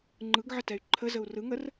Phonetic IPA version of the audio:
ŋ͡ǃ ɯ ɡ ʕ ə t ɛ y̯ ǃʰ ə z ə u̯ r ɯ ŋ ə r

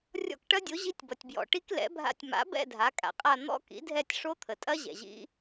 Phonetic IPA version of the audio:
rʲ ɔ̰˦˨ k ʈ ɐ˦˥ dʲ o˩˥ ʑ i˦˥ tʲ b ʌ˩ tʲ b j ɔ̰˩ ʈ i˦˥ k l ɛ̰˩˥ bʱ a̰˦˨ tʲ m a̰˩˥ b ɛ̰˦˨ dʱ a˩˥ kʼ a̰˩ qʼ a˦˨ n̪ ɔ̰˦˥ k ḭ˩˥ dʱ ɛ˦˨ tʲ ʂ o˦˥ t̪ʰ ə˩ tʼ ɐ˦˥ ʑ ɛ̰˩ ʑ ḭ˦˥

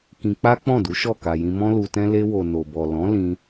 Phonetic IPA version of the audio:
k ĩ˧ k͡p a˦ k͡p ɔ̃˦˨ d u˨˦ ʃ ɔ˦˨ k a˨ j ĩ˧ m ɔ̃˦ l u˧ t ɛ̃˦ l e˧ w o˨ n o˨ b ɔ˨ l ɔ̃˨˦ l ĩ˧

